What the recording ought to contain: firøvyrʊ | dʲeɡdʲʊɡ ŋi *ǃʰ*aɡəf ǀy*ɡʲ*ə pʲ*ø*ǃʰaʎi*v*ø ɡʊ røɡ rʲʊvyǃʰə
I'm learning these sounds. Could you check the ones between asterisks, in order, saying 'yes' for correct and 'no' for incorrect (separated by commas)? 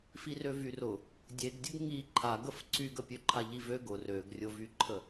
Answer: yes, no, yes, yes